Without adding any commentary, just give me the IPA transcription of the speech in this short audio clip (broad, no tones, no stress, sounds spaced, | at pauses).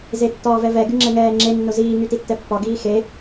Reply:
z e tː ɒː v ɛ v ɛ ɡ y ŋ͡ǁ ɛ ŋ ɛː ŋ͡ǁ e nː ʊ z iː ŋ y t i tː ɛ pː ɒ ɡ iː x e